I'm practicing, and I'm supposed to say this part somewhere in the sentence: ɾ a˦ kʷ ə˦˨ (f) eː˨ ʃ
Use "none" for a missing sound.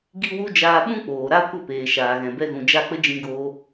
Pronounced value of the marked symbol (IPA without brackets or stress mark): p